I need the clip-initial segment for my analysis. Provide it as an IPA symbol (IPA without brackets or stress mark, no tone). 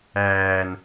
æː